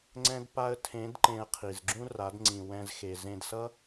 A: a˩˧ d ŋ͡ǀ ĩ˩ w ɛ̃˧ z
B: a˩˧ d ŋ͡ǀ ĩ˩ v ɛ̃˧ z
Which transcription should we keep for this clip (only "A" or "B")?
A